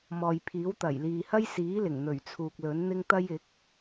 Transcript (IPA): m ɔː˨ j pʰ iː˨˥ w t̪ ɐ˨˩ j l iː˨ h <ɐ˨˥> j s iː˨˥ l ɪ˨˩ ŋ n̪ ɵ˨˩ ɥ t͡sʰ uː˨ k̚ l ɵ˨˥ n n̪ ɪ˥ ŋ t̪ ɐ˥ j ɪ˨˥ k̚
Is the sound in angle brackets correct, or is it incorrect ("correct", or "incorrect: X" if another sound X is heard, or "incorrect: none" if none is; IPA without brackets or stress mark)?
incorrect: ɐ˥